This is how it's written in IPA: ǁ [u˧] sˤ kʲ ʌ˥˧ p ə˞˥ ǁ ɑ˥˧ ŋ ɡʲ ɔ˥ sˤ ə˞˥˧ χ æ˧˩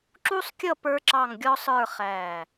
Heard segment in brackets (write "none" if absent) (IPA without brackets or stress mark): u˥